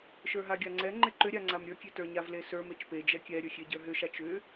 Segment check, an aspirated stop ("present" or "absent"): absent